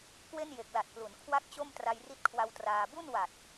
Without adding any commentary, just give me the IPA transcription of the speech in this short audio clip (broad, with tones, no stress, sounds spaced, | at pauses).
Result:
k w e˥˩ n j e˨˩ k̚ l a˨˩ t̚ p l u˩˦ n kʰ w a˥˩ k̚ t͡ɕ o˥˩ m t r a˧ j r i˦˥ t̚ kʰ w a˧ w t r aː˧ b u˥˩ n w a˨˩ t̚